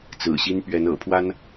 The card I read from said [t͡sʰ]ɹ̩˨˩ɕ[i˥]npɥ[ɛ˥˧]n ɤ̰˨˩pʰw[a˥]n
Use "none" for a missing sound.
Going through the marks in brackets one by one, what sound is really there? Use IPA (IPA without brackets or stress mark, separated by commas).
t͡s, i˥, ɛ˧˥, a˥